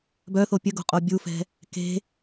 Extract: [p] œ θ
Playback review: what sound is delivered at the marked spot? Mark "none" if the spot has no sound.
b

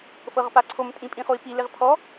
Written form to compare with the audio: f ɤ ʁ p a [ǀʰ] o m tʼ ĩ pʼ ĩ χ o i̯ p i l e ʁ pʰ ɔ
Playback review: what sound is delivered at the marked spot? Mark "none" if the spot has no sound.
ǀʰ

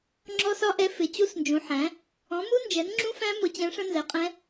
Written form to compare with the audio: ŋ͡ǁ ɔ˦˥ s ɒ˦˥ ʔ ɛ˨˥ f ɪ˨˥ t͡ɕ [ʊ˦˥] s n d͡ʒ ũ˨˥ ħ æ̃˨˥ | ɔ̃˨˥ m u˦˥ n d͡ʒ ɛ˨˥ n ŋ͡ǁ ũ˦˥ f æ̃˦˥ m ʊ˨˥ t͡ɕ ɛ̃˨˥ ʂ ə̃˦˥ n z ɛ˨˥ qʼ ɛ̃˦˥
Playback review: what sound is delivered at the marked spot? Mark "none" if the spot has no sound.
u˦˥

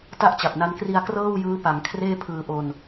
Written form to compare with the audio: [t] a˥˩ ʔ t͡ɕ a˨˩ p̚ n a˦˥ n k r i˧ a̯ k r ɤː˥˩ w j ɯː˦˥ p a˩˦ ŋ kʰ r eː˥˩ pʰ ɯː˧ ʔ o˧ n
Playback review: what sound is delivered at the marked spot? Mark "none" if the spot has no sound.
t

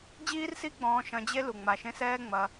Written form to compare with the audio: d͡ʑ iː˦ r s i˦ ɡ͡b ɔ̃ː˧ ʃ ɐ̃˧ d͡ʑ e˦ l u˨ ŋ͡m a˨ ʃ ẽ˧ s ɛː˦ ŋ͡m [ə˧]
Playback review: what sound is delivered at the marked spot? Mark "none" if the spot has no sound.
ɐ˧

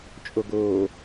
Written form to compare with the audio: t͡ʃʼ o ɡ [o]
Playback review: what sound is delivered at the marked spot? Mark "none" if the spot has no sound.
oː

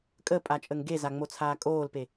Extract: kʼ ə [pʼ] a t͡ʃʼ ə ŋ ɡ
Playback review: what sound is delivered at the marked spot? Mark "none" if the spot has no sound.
pʼ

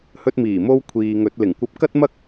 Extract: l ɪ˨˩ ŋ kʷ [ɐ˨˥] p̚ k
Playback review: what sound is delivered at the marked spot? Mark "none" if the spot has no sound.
ɐ˧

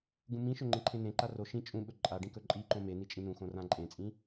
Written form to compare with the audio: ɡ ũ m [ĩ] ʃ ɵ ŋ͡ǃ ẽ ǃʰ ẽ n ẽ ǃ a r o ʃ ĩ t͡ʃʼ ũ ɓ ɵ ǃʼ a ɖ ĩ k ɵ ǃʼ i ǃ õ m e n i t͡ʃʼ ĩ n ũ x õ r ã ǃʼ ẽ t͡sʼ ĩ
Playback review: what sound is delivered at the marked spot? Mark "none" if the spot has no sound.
ĩ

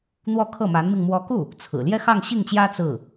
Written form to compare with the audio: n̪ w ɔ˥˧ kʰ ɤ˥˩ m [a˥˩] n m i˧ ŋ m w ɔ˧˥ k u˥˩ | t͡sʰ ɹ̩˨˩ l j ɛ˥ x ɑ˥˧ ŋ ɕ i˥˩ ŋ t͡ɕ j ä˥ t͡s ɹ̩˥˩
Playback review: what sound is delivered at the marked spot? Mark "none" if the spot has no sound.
a˧˥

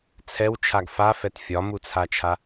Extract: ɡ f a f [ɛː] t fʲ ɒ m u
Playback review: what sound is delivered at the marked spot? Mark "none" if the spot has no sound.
ɛ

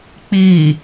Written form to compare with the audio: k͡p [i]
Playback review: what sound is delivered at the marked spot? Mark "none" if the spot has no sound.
i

